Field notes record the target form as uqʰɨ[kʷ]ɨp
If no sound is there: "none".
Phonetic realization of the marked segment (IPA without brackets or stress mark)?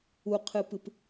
p